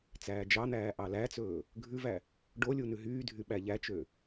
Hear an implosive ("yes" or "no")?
yes